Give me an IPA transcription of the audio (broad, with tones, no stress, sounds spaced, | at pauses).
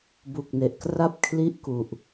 b u˨˩ k̚ n e˨˩ ʔ k r a˥˩ p̚ kʰ l i˥˩ ʔ k u˨˩ ʔ